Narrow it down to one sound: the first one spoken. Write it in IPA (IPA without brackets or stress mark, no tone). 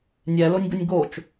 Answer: nʲ